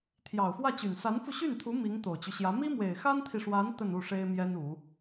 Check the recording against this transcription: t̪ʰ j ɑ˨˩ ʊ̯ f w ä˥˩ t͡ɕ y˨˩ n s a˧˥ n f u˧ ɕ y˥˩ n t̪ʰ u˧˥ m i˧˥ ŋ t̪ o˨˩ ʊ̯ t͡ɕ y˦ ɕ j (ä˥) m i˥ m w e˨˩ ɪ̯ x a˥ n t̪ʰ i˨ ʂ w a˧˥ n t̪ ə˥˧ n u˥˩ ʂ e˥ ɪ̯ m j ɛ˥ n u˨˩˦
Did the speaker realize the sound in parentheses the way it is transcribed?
no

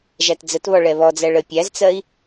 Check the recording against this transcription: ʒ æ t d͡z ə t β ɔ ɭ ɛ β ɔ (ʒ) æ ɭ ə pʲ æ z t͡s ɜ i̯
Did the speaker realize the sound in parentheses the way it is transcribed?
no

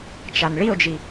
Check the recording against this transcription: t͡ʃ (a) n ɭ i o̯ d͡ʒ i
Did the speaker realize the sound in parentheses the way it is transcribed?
yes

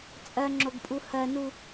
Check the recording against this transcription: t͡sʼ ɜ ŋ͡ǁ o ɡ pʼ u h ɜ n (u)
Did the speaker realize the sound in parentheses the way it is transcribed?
yes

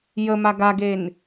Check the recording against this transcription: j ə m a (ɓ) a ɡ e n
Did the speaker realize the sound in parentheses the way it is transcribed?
no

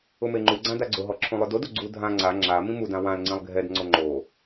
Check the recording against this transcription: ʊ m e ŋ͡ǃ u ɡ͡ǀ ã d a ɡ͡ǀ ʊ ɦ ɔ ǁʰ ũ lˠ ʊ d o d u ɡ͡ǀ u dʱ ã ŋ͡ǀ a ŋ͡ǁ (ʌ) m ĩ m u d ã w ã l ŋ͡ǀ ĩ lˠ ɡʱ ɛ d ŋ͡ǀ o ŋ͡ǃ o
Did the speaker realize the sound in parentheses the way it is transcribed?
no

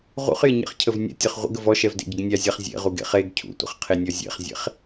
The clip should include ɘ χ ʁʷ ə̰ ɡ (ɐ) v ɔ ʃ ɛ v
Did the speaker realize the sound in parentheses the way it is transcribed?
no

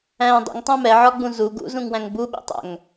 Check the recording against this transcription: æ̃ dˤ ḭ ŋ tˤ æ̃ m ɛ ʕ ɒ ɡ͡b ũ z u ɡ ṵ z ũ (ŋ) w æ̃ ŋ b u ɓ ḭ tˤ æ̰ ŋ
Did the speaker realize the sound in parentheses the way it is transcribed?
yes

